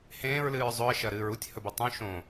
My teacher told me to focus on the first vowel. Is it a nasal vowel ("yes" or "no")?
yes